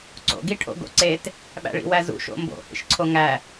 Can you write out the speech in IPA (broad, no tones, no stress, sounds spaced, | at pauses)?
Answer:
ǀ o̰ ɡ i ʈʰ o̰ ɡ o̰ ǀ e t | ɓ æ̰ ɭ ḭ w æ z ṵ ʃ o̰ m b o̰ h ḭ ʃ ǀʰ o ŋ æ